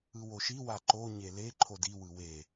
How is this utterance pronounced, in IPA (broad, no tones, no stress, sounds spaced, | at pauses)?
ɯ w o ʃ i w a ǃ o ɲ e l e ǃʰ o d i w ɯ w e